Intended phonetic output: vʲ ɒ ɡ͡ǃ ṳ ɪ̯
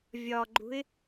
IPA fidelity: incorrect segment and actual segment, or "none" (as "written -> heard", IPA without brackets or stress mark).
none